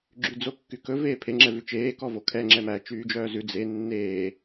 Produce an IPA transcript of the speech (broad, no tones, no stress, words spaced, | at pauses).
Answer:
ɡ͡ǁyd͡zokːykɵ veːpʰe ŋ͡ǁɛvʉt͡ʃeː kɔvokʰɛ ŋ͡ǁɛmæ t͡ʃyːd͡ʒœːzʉ d͡ze nːeː